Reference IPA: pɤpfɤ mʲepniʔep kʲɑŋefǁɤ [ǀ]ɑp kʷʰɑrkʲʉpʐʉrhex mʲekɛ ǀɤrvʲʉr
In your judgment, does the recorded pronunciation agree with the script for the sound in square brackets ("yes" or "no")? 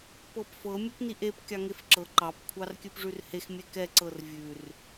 no